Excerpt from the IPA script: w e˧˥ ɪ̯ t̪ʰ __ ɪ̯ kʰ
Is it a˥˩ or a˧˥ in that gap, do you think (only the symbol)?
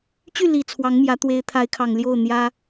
a˧˥